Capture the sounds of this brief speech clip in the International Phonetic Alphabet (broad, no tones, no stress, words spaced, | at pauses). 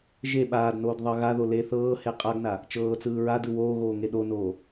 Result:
ʒe ɓaːdnoːd ðˤɤɣaðo le θɤː heqʼaɡna | t͡ʃɤːt͡sɯː ɹadɯ woːɣoː ŋeɗonoː